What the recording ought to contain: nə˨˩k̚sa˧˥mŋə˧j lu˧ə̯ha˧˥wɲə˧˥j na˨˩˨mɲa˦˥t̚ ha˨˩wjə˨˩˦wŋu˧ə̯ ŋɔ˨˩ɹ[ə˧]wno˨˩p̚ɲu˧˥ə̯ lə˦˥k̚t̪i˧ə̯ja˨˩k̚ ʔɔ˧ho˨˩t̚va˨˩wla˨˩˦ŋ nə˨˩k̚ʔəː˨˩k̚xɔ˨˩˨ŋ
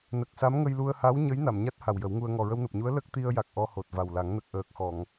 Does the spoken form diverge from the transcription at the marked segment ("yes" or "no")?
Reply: no